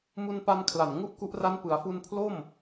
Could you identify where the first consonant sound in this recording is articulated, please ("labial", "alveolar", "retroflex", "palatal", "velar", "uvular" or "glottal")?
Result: labial